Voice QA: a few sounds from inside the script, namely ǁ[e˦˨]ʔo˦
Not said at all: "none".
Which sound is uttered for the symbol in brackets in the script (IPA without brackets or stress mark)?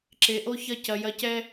e˨